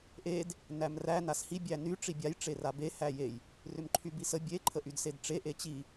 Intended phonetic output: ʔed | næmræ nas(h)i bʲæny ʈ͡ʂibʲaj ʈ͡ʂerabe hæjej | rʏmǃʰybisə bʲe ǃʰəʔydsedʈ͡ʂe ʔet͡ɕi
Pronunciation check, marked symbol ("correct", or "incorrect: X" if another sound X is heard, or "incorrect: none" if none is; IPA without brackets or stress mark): correct